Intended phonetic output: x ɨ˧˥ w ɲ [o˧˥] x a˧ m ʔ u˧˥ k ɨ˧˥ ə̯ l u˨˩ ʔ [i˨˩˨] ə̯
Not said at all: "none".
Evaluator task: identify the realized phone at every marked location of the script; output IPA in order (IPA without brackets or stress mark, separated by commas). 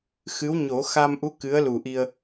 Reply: o˨˩˦, i˧